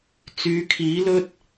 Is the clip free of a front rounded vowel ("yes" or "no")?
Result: no